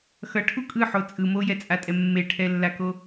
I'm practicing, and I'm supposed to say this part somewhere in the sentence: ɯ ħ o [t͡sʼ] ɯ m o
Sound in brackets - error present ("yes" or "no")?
no